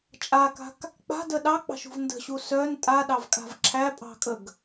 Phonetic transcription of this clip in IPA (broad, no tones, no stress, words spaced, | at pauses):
t͡ʃʼaka̤k | k͡pa̤də ɗɑk͡pɑ̤ʃṳv ndə̤ɕu sœn tʼaɗɑvkʼa̤v ǁʰæpʼɑ̤kʼəɡ